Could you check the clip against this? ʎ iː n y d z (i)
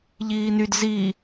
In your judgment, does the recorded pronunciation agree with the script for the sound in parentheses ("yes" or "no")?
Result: yes